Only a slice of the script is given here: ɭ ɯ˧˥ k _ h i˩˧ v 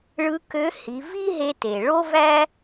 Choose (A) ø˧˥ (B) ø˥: A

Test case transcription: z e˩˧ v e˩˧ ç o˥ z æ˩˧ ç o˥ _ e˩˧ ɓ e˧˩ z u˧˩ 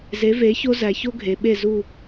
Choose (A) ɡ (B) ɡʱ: B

